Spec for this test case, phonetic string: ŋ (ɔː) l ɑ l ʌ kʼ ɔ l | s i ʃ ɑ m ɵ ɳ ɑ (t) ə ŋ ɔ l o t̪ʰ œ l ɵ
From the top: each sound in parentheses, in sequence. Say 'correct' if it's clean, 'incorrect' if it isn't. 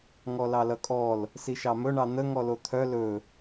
incorrect: ɔ, incorrect: n̪

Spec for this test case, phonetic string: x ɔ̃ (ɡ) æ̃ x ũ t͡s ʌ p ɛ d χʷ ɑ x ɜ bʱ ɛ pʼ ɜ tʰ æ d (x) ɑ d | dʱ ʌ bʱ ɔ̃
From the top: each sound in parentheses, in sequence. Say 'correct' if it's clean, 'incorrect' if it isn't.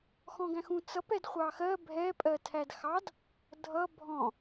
correct, correct

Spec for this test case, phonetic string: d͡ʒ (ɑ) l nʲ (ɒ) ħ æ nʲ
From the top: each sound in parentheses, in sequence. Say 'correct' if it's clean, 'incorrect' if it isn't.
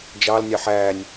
correct, incorrect: ɑ

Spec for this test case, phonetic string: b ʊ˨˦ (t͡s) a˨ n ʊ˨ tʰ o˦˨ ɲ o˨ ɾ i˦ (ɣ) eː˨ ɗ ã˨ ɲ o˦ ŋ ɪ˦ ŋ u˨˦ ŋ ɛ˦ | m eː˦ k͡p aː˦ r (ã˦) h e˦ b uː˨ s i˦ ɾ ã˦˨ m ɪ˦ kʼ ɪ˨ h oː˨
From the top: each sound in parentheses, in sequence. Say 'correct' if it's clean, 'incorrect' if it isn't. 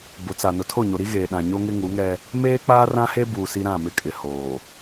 correct, correct, correct

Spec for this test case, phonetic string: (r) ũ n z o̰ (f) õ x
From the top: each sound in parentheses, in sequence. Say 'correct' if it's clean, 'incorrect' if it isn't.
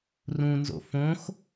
correct, correct

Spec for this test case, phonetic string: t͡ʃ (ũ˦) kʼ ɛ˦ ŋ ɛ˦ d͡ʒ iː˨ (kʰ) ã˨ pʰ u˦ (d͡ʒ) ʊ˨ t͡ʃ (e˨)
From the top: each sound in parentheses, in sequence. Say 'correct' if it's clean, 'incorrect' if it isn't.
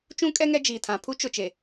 correct, incorrect: tʰ, incorrect: t͡ʃ, correct

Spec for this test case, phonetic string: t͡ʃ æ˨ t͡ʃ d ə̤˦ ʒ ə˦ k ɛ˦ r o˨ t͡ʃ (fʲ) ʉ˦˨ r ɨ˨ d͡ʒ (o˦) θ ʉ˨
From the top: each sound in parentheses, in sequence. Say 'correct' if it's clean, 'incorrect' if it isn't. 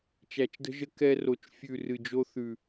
correct, correct

